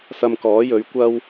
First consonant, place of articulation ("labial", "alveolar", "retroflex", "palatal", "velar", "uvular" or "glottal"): alveolar